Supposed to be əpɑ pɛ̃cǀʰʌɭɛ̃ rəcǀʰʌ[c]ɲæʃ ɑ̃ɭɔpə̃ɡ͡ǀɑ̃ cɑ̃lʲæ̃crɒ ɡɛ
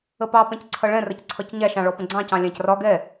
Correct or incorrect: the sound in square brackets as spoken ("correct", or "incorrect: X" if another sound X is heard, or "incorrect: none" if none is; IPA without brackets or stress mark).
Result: correct